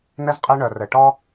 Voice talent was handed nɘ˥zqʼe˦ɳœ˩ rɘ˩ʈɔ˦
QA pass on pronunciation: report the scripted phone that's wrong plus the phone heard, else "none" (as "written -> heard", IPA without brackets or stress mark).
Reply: none